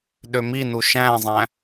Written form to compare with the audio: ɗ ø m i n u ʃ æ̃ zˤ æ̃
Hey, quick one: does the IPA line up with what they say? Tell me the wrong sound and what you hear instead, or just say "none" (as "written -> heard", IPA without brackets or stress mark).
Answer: none